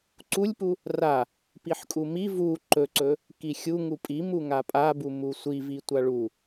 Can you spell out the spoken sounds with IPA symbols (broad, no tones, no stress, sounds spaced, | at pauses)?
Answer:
ǀ u lʲ p u | r a | p i ħ kʼ u m i v u ǃ ɵ ǀ ɵ | k i xʲ u ŋ u pʼ i m u ŋ a pʼ a b u m u sʷ i v i tʷ a ɭ u